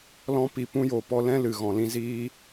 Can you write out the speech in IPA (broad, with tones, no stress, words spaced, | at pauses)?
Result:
lɔ̃˧ pi˨pũ˧jo˨ pɔ˧lɛ̃˦ lɨ˨ɣɔ̃˨ lĩ˧ziː˦